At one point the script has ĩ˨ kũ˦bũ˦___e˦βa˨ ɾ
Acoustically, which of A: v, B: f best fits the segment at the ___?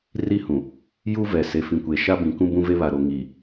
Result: A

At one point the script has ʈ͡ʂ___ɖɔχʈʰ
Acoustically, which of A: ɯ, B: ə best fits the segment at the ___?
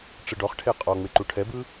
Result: A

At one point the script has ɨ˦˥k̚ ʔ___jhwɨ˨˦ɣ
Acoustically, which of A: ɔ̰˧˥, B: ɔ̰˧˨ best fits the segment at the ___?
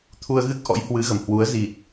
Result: A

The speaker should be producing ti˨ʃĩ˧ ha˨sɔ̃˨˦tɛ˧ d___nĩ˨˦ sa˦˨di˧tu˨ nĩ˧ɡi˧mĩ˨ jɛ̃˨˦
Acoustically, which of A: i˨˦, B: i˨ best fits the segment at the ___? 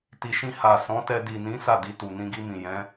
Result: B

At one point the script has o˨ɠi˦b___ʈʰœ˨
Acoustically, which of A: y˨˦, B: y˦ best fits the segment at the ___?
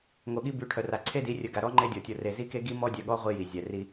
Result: A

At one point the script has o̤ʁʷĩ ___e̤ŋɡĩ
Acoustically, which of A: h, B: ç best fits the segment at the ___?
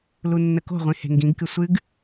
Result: A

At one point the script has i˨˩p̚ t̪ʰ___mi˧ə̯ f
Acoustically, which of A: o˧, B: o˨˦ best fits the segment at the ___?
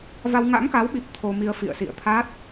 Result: A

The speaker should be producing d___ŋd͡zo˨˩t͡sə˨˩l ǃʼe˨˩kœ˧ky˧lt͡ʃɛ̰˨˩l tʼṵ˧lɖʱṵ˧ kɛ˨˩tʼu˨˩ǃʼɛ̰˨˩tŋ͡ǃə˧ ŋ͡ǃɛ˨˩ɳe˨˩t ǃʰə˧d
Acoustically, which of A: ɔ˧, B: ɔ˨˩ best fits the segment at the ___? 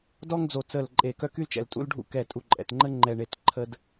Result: A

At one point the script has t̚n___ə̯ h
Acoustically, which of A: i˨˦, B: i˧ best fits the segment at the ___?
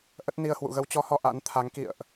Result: B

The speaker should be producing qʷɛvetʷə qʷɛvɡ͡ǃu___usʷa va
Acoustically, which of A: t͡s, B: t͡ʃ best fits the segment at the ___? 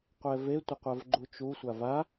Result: B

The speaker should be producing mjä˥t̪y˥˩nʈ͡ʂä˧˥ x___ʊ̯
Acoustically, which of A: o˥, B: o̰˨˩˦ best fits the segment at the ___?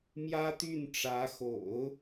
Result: B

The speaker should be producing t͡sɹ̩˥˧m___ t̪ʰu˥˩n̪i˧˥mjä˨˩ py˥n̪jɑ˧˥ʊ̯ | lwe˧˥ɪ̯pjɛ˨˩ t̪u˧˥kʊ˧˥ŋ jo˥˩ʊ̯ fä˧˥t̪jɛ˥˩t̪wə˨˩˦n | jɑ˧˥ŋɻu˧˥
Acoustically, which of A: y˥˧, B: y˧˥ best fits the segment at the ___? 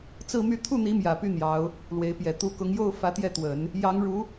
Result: A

